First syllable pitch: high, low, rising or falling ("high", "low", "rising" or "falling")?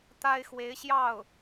high